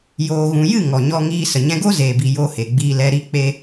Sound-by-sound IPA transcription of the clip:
joː˨ɣũ˨jɨ˦˨ ŋɔ˨ɲɔ˧ŋiː˧ sə˨ɲɛ̃˧ɡo˦ zeː˨bi˨ jo˧he˨ɡ͡biː˧lɛ˧ ɾi˦k͡pe˦

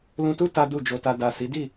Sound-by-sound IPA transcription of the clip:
lũ˧tu˦ ta˦du˦˨d͡ʒo˧ta˧ da˨ si˨˦di˦˨

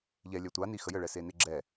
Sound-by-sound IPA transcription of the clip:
ʎɛ lʲœtʷa nixəjə ɭɛsenɪɡ͡ǁɛ

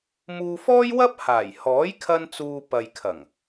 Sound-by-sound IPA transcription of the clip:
muː˧fɔː˥jwɐ˥p̚ haː˨˩jhɔː˨˥jkʰɐ˧nt͡suː˨ pɐ˨jkʰɐ˨˩ŋ

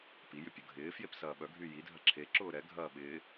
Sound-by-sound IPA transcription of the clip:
pi jʏpʲʊɡʱɪːfjep sɐːɓœɡʱy jidʱɐ ǁʰeǁʊː ɾɛɡʱɐː ɓɪː

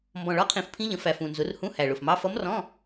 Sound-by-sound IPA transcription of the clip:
mbɔ̃˨˩ ɭɒ˧˥˧qʰĩ˧˩˧f pʰĩ˧˥ʎə̃˩˧ fæ˨˩fũ˨˩nzʊ˩˧r hũ˧˥˧ hæ˨˩ɭʊ˨˩fmɑ˧˥˧ fʌ˧˥mrɔ̃˧˥˧

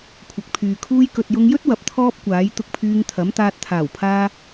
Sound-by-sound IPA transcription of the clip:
kʷʰɐ˨˥k̚pʰyː˨kʰuː˥j kɵ˨t̚jʊ˧ŋjɵ˥t̚ wɐ˨p̚t̪ʰɔː˥p̚kʷaː˨˥j t̪ʊ˧k̚pʰyː˧ŋt̪ʰɐ˨˥mt̪aː˧t̚ t̪ʰaː˨˩wpʰaː˧

